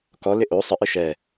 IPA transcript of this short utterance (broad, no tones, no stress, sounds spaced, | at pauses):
k ɔ l ɪ ʔ o sˤ ə ʔ ɨ ʃ ɛ